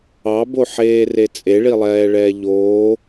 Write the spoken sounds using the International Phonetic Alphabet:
ɑ b o ħ eː r e t͡sʼ e ɭ i lˠ ɛː ɭ ɛː ʎ oː

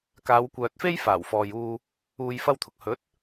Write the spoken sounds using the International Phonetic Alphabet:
k aː˨˧ w kʷ œː˨ t̚ f e˥ j f aː˨˩ w f ɔː˨ j uː˧ | uː˨ j f ɐ˧ w t̪ʰ ʊ˨ k̚ h ɵ˨˥ t̚

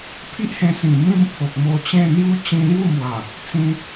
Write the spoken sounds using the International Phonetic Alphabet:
pʰ i˦ ʔ h ẽ˧ s ĩ˨˩ m ĩ˥˧ m pʰ o˨ k̚ m o˧ t͡ɕ ẽ˥˧ n̪ j u˦ t͡ɕ ĩ˧ l j u˥˧ m w a˨˩ | t͡s ĩ˧

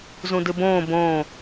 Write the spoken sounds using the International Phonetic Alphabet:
z ũ d ɨ b õː b õː

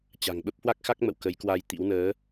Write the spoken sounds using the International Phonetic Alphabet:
t͡ɕ a̤˨˩ ŋ ɓ ə˦˥ p̚ h w a˦˥ k̚ x a˦˥ k̚ m ə̰˧˨ w k ə˨˦ j k w a˧ j t̪ ḭ˧˥ w n əː˨˦

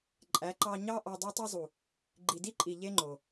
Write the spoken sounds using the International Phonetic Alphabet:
ǃʼ æ˨˦ ǃ ɑ˧ ɲ ɑ˦ ʔ ɑ˧ dˤ e˦ tˤ i˦ zˤ u˨ | ɡ͡ǃ i˨ d i˦ ǃʼ i˨ ʎ e˦ ŋ͡ǃ o˨

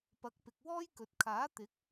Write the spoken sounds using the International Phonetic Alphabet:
p ɐ˨˥ k̚ p ɪ˨ k̚ w ɔː˥ j k ɵ˨ t̚ kʰ aː˨˥ t̪ ɪ˨˥ k̚

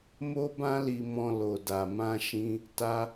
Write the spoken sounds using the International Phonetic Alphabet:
m o˦ b ã˦ l i˧ m ɔ̃˧ l o˨ d a˨ m ã˧ ʃ ĩ˦ | t a˦

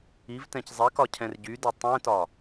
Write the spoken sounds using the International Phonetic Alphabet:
i v t ɛ̃ c zˤ ɛ k ɒ cʰ ɛ̃ r ɟ y d e tˤ ɛ̃ t ɒ

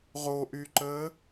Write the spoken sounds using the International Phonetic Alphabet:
ʁ o ʔ y ǃ əː

